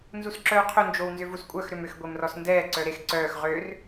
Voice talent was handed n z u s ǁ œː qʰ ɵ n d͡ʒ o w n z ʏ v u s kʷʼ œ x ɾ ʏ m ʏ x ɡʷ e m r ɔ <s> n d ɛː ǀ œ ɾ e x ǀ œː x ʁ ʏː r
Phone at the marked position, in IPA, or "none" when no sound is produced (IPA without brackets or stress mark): s